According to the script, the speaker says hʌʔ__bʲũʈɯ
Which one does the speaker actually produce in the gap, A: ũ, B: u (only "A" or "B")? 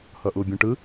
B